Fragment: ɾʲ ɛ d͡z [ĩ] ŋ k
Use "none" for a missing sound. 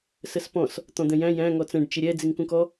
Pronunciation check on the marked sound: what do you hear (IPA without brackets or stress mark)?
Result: i